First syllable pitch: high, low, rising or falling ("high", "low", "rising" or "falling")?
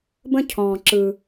high